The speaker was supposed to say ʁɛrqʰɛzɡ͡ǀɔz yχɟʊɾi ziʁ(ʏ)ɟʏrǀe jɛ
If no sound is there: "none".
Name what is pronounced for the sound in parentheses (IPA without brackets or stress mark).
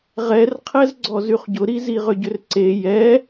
ʏ